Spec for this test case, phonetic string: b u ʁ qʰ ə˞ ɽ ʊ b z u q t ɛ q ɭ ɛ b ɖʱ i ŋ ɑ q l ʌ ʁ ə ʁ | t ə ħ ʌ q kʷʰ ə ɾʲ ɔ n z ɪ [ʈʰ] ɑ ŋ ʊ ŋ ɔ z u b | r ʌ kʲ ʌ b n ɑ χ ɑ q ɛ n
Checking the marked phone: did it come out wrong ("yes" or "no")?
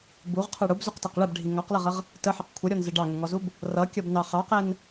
yes